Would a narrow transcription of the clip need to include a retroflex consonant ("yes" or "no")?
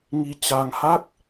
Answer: no